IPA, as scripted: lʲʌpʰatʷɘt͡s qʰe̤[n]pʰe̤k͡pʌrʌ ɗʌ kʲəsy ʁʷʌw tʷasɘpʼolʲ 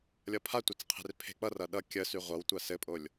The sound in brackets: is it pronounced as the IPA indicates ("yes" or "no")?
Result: no